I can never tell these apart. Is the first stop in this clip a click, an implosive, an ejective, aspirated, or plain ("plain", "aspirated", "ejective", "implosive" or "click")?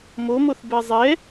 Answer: plain